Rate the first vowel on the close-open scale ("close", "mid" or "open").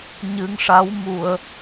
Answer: close